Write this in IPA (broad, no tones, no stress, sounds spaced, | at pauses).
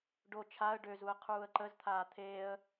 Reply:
ɖ o t͡ʃʰ a ə̯ ɖ ø z u ə̯ qʰ uː ə̯ ǃ ə z t̪ʰ aː t̪ʰ eː ə̯